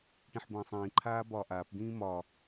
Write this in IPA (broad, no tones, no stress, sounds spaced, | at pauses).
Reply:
ʈ ĩ ħ b ə̃ː sˤ ĩː ǃʰ aː b ɒː ʔ aː p d ĩː m ɒː